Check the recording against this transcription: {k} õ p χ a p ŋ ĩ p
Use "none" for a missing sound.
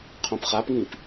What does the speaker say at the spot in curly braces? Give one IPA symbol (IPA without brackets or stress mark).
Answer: qʰ